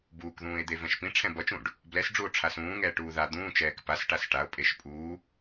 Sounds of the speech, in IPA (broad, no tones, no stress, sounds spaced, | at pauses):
b uː k ð ũː e̯ d̪ e v ɛ̃ ʃ p ĩ ʈ͡ʂʰ ɛ̃ b ʌ t͡ʃ ũ ɖ | b l ɛ s ɖ͡ʐ u o̯ ʈ͡ʂʰ a s ũː ŋ ɛː ʈ uː ð a d̪ ũː t͡ʃ ɛː k p a s ʈ a s ʈ a o̯ pʼ e ʃ pʼ uː